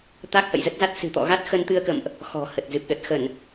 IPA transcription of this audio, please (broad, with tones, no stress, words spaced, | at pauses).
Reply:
t̪a˦˥k̚hə̰˧˨jzə˦˥t̚za˦˥t̚ sɨ̤˨˩t̪ɔ̰˧˨ɣa˦˥t̚ xə˧nt̪ɨ˧ə̯kə̰˧˨mʔ | xɔ̤˨˩ hə˨˩t̚zɨ˨˩p̚ɗə˨˩t̚ xə˧˩˨n